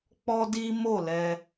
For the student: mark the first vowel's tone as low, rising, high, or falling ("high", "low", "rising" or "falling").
high